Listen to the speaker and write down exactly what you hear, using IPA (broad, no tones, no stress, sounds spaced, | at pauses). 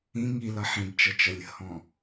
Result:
ĩ ŋ i l ʌ ħ ĩ b t͡ʃ ʌ t͡ʃ ʌ lʲ ə̤ h ɔ̃